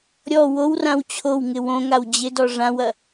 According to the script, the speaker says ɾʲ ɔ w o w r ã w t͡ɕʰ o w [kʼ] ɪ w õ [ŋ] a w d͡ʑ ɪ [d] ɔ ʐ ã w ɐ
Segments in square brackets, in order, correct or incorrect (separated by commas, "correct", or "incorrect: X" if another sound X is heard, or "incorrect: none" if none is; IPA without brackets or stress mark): incorrect: ŋ, correct, correct